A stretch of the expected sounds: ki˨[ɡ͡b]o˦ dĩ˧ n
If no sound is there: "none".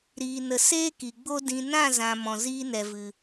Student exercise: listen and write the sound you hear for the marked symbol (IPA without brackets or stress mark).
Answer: ɡ͡b